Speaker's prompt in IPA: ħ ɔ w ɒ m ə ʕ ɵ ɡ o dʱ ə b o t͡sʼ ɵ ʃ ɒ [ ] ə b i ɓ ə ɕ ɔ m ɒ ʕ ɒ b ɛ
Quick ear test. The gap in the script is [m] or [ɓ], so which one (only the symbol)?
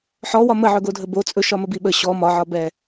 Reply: m